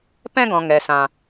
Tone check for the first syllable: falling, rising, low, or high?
high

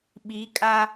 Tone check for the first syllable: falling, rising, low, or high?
rising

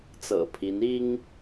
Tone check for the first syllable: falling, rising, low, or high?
low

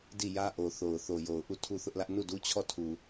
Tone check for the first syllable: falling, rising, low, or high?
falling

